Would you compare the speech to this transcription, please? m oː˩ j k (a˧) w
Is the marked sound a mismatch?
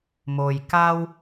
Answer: no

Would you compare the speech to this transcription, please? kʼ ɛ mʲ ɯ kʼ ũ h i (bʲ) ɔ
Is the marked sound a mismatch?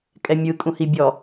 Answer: no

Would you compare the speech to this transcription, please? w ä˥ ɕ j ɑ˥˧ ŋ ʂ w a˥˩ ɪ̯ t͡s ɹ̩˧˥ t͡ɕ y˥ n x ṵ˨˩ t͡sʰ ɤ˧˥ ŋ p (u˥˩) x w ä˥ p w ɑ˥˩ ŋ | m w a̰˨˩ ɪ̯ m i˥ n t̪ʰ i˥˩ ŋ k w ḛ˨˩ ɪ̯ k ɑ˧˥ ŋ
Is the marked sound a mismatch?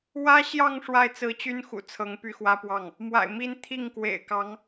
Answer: yes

